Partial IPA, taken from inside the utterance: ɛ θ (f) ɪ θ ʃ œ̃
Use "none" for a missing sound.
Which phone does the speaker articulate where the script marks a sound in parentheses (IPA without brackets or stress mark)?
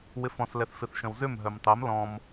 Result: f